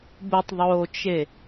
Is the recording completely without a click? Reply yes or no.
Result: yes